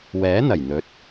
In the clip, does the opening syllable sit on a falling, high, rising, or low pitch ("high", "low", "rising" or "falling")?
rising